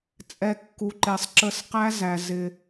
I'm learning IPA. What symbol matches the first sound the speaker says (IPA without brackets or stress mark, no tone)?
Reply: t͡sʼ